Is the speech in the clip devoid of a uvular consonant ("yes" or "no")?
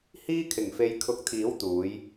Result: yes